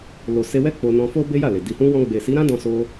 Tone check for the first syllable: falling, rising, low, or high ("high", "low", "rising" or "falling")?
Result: low